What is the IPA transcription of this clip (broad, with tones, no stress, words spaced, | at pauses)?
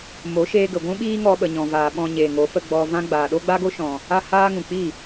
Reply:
mo˨˦ʃeː˧ɡə˨ ɡʷũ˦ɓiː˦ŋɔ˧ ɓə˨ɲɔ̃˨vaː˨ ɓɔ̃˧ɲeː˨ŋo˨˦ fə˧ɡ͡bɔ˧vã˦ ɡ͡baː˨ɗo˦ɡ͡ba˦ɡo˦ ʃɔ̃˧ | a˦haː˦ŋũ˨ k͡pi˦˨